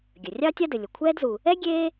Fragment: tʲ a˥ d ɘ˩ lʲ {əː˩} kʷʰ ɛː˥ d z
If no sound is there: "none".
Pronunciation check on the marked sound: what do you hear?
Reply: ə˩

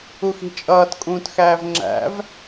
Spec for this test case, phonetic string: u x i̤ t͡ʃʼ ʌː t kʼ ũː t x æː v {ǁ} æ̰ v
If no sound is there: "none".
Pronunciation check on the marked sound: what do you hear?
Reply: ŋ͡ǁ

